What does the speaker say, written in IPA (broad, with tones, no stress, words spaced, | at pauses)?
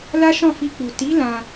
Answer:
la˦ʃɔ̃˦˨fi˧k͡pu˨ ti˨˦ lã˧